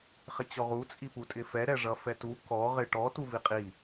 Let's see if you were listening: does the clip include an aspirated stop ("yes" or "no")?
no